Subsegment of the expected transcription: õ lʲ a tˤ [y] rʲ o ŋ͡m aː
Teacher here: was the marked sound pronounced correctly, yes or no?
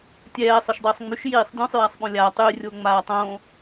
yes